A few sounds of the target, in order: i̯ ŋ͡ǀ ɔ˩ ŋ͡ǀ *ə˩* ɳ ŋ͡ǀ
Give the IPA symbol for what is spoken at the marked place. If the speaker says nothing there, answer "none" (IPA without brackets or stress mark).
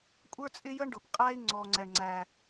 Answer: ɛ˩